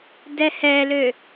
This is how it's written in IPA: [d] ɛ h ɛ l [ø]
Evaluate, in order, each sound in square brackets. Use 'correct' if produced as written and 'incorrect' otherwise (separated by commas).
correct, correct